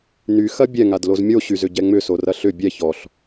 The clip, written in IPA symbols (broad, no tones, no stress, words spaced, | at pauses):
nyxɐ bʲɛŋadloz mʲoɕyzʏɟɛ ŋ͡mʏsorɐ ɬʏ bʲɛ çɔɬ